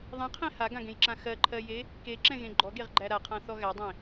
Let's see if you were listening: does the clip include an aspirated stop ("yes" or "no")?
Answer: yes